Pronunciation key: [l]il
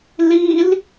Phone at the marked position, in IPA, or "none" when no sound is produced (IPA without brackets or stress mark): l